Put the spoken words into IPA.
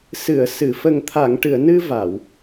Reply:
s ɨ˨˩˨ ə̯ s ɨ˨˩˨ f ə˨˩ ŋ t̪ʰ a˨˩˨ ŋ ʈ ɨ˨˩˨ ə̯ n ɨ˧ v a˨˩˨ w

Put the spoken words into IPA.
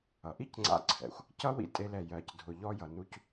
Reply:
ʌ˩ ʔ i˥ c ŋ͡ǀ a̰˧ ǀʰ ɛ̰˩ xʷ | c ʌ˥ w ḭ˧ tʼ e˧ l ɛ˩ j ɜ˩ c dʱ ʊ˩ ʎ ɔ˧ j ʌ˩ n u˧ c

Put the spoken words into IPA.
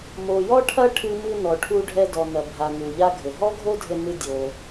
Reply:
m o˩ j ɔ˥ ʈʰ ɐ˥ ʈʰ ɨ˧ m ɨ˧ n ɔ˩ ʈʰ u˧ ɖʱ ɛ˧ d ɔ˩ n ɐ˩ bʱ a˩ n u˩ ʎ a˥ ɡʱ ɘ˩ ɦ ɔ˥ ɡʱ o˥ dʱ ɘ˧ n ɨ˧ dʲ o˩

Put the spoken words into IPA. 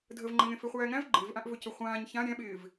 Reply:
dʱ ə v ŋ͡ǃ ə̃ ŋ ẽ f e χʷ æː ŋ æ̃ v ɡ͡ǃ ɪː v ʔ ã ʔ v ɵ c ɵ χʷ ãː ɲ ç ã ɾʲ æ̃ ɓ ɪː v

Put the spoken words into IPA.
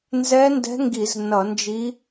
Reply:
n z ɛ˧˥ n d ɛ̤˧˥ ŋ ɡ i˧˩˧ z n ʌ˧˩˧ n d͡ʒ i˧˥

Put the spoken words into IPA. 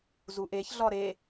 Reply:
z u ʔ e ç ɮ ɒ ɾ e

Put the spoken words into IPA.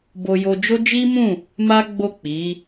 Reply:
b o˧ j o˧ d͡ʒ o˦ d͡ʒ i˦ m ũ˦˨ | m a˦ ɡ͡b o˦˨ k͡p i˨˦

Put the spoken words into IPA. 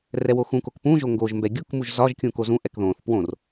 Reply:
r ɛ w o x ũ k o k p ũ ʒ o ŋ ɡ o ʒ m b ɛ ɡʲ u k m u ʒ z ɒ ʒ kʲ ũ k o z ũ ʔ ɛ k ð õ θ p w õ r

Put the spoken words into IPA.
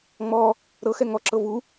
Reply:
ŋ͡m ɔ | ɾ ɤ x ɛ ŋ ɔ ǁ ɤ v u

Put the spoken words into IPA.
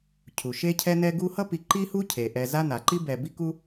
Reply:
cʰ u˩ ʃ e˦ cʰ ɛ˦ n ɛ˦ ɡ u˦ h ʌ˥ p i˨ ǃ i˥ h u˥ cʰ e˩ ʔ ɛ˨ z a˦ n a˩ ǃ i˥ b ɛ˨ b i˦ k u˦

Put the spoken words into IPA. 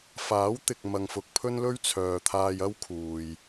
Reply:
f aː˨˥ w t̪ ɪ˨ k̚ m ɐ˨ ŋ f ʊ˨ k̚ pʰ ɵ˥ n l ɵ˥ ɥ t͡sʰ œː˨ t̪ʰ aː˧ j ɐ˥ w kʰ uː˨ j

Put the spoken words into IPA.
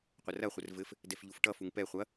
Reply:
qʷ ə r ɐ χʷ ə r v ɘ f | d ɛ f ʎ u f ʈ ʌ f u ŋ p ɛ χʷ ɐ

